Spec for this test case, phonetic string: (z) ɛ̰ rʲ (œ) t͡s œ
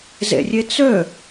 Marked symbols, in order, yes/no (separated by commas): yes, no